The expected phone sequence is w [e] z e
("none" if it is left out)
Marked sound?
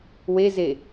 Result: e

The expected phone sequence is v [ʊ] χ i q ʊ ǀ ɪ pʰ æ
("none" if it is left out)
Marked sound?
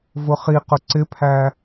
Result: ʊ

